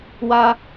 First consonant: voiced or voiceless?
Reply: voiced